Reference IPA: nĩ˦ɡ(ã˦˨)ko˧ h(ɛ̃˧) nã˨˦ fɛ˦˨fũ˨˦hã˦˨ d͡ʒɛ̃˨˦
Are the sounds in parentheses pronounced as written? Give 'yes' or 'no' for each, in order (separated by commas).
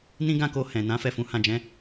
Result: yes, no